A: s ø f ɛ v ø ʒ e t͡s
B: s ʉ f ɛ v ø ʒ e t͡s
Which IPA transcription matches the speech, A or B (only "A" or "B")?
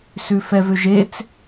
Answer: B